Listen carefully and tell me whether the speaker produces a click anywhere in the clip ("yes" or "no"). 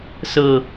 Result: no